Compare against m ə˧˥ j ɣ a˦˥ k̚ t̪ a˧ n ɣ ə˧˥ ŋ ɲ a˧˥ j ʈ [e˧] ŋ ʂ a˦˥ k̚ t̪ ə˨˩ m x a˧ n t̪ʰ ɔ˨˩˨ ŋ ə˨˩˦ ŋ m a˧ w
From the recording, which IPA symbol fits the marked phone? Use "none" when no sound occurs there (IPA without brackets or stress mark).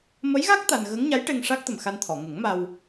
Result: e˧